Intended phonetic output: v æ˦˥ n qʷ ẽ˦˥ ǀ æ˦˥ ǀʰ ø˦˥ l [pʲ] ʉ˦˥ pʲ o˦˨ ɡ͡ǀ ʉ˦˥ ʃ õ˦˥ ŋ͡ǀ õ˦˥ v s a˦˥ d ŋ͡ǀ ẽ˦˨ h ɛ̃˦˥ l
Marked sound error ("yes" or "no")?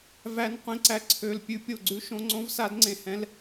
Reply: no